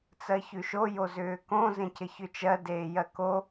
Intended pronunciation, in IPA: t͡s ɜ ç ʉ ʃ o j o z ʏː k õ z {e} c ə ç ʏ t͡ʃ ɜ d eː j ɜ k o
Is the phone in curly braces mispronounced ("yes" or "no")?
yes